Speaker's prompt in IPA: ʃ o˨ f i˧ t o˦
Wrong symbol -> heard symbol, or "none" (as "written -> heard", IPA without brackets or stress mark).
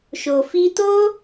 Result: none